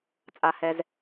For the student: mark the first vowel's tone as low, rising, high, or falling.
high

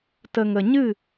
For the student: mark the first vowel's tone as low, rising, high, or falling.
low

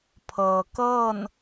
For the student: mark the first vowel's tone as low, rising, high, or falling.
low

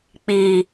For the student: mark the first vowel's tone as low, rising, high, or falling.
low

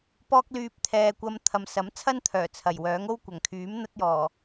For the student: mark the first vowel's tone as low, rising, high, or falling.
high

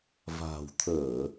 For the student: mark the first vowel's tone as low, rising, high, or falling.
low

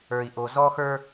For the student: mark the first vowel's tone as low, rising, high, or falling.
low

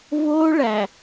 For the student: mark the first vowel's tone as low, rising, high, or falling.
high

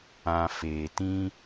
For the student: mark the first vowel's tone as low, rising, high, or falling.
low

